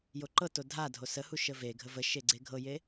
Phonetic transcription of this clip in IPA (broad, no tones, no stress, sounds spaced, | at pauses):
j o ǃ ɤ t o dʱ a dʱ o s ə h u ʃ ə v e ɡʱ ə v ə ʃ e ɡ͡ǀ e ɡʱ ɤ j e